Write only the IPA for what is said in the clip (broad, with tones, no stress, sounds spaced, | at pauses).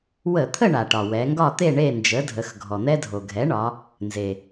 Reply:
w ə˧˩˧ t̪ʰ ə˥˨ ɳ a˩ ʈ ɒ˩ w ɛ˩˧ ŋ ɡ ɒ˥˨ t̪ e˥˨ ɳ e˥˨ n d͡ʒ ə˩˥ dʱ ə˩˧ x ɡʱ ɔ˩ n̪ ɛ˦ dʱ o˩ ɡʱ ɛ˩˥ ɳ ɒ˩˧ | n z e˩